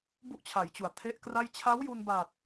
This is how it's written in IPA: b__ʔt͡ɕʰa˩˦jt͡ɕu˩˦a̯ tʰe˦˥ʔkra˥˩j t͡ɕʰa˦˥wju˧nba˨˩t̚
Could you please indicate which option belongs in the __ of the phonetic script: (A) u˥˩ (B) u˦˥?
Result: A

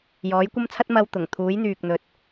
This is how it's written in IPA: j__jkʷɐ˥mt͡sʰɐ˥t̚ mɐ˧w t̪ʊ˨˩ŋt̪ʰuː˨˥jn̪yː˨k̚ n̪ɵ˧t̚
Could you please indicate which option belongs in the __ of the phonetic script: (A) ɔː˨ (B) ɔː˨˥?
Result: B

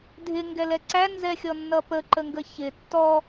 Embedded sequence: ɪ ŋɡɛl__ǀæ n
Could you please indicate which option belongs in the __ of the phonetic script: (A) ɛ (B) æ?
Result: A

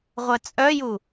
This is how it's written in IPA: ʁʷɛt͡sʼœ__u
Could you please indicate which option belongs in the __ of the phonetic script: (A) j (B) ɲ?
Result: A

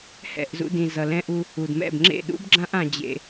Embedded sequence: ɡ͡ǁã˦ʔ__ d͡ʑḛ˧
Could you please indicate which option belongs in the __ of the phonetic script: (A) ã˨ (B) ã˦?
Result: A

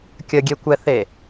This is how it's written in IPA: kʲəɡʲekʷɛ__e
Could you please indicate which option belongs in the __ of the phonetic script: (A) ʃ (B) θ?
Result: B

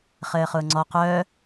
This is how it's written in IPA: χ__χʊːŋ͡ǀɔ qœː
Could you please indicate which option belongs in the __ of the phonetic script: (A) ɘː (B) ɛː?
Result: A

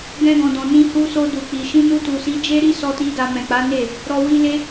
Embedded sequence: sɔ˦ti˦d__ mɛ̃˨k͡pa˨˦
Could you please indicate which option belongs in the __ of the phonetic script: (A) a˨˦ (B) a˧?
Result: B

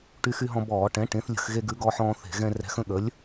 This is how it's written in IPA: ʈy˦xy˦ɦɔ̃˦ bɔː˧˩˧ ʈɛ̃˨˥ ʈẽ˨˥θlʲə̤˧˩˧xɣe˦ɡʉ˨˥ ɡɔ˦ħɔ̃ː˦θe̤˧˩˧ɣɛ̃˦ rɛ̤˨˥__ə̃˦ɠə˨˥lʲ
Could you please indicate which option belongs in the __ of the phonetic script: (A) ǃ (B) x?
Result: B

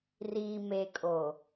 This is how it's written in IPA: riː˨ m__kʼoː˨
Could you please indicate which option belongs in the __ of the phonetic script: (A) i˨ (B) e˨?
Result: B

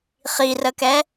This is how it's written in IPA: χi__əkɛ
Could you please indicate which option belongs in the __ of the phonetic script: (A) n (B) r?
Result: B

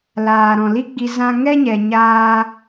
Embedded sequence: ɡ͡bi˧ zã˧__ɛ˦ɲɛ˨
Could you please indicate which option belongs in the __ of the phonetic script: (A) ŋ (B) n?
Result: A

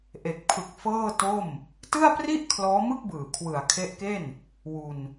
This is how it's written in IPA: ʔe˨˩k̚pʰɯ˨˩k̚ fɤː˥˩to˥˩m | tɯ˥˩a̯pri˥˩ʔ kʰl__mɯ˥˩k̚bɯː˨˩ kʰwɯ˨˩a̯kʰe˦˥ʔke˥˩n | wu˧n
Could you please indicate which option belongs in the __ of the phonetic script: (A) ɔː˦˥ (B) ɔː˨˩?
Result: A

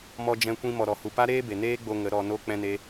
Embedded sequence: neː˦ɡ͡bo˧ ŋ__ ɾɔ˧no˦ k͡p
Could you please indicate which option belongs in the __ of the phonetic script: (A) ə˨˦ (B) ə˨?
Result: A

